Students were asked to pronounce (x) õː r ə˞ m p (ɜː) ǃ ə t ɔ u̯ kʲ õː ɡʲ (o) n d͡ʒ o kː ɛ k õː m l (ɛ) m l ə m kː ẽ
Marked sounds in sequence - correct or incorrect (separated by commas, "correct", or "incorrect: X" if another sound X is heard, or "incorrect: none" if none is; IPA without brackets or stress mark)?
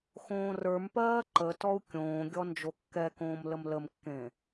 correct, correct, incorrect: ɔ, incorrect: ə